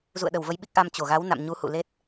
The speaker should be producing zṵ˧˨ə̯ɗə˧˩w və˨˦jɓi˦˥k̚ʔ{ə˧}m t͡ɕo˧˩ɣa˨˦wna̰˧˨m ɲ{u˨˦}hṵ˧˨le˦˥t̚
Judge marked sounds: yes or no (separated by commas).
no, yes